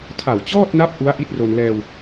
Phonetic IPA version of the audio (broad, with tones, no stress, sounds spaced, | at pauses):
tʰ a˨˩ w t͡ɕ ɔː˥˩ t̚ n a˦˥ p̚ ʔ u˦˥ a̯ ʔ i˦˥ t̚ r o˧ n l ɛː˧ w